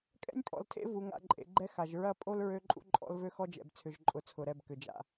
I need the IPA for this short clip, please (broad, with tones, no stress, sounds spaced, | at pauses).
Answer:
kʼ ɛ̰˦ nʲ pʼ ɔ̰˨ l tʰ ḛ˦ v u˨ ŋ a̰˨ ǃʼ ḛ˨ ɡ͡ǃ ɛ˦ x a˨ ʒ ɹ ɐ˦˨ pʼ o˦ l ɹ ø˦ ǃʼ ṵ˦ ǃʼ ɔ̰˦ l v ø˦ x ɔ˦ d͡ʒ ɛ̰˨ b t͡sʰ ʏ˨ ʒ ǃʼ ʊ˨ t͡sʰ ʊ˨ ɾ ɛ˦˨ b k ʏ˨ d͡ʒ a̰˦